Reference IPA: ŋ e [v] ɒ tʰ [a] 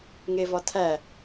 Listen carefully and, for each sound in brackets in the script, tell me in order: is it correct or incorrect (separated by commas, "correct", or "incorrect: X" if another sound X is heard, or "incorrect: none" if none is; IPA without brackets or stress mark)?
correct, incorrect: æ